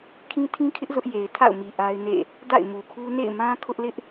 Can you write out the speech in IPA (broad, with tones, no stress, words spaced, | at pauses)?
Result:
kʰĩ˦tʰĩ˦kʰɪ˦ʔ zʊ˦ʔje˨ɪ̯tʰa̰˦˨ʊ̯mi˨ ʔa˦ɪ̯nḛ˦˨ | da̰˦˨ɪ̯mu˨kʰu˦ nḛ˦˨ɪ̯mã˦ kʰʊ˦ʔ lɪ˦ʔ